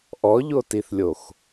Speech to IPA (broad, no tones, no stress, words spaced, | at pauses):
ʔɔʎotiθlʲox